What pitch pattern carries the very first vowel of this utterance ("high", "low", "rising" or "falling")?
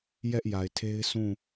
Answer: high